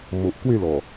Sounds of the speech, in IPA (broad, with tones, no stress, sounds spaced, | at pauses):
m o˨ ʔ k w e˥˧ l ɔ˨˩